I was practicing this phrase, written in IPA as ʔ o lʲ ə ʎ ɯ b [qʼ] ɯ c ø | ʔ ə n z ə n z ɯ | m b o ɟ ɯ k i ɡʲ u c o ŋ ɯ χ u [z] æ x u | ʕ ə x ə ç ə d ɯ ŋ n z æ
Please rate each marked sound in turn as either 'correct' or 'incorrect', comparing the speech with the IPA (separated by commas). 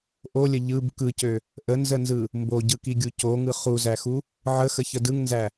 incorrect, correct